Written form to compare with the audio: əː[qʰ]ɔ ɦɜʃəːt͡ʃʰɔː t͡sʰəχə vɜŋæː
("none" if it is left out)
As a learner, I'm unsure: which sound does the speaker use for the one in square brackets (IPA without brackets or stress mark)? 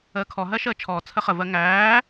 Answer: kʰ